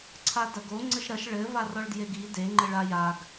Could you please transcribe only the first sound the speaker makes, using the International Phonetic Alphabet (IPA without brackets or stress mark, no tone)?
ǀʰ